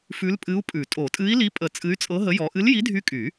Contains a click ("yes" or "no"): no